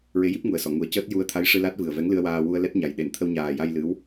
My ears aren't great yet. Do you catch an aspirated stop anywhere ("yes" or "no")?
yes